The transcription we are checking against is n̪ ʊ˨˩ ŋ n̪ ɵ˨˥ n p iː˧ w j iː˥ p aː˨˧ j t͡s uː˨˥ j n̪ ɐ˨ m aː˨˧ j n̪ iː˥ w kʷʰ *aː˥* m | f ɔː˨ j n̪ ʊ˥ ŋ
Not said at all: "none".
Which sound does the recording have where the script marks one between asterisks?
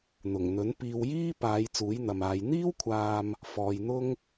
aː˨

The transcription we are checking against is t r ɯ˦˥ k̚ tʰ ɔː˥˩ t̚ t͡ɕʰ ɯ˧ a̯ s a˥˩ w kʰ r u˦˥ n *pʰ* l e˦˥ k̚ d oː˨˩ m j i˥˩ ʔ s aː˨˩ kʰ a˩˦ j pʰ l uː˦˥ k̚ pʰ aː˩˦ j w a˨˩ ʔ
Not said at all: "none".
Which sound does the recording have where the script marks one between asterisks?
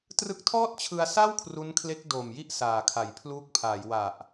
kʰ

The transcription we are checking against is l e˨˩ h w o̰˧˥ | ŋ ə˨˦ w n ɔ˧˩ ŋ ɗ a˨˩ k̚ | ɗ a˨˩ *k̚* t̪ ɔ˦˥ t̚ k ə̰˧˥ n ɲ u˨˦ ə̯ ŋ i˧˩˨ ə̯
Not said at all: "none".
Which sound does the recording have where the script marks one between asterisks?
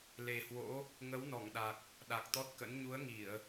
k̚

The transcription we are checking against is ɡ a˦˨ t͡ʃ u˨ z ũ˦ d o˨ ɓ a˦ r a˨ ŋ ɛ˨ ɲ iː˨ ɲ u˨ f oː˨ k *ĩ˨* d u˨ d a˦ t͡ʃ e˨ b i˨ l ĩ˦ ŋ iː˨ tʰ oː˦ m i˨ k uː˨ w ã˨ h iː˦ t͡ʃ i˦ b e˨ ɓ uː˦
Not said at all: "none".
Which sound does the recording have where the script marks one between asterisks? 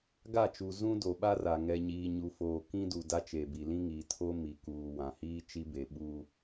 ĩ˦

